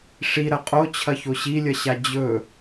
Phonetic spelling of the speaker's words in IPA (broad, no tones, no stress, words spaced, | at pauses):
ʂi ɾɐqʼot͡ɕʰɐ çoɕilʲɐɕa d͡ʑɵ